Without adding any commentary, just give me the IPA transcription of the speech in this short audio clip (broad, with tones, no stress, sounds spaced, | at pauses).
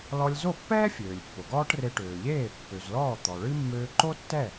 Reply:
l ɔ˧ lʲ z o˥˩ pː ɛː˥ fʲ øː˩ lʲ pː o˩ ɡ ɔː˥ ʈ r e˧ ʈ øː˩ ʎ eː˥˩ pː ø˩ z l ɔː˥˩ t̪ ɔ˩ ɭ ɨ˥ mː øː˧ ǃ o˥ tː ɛ˥˩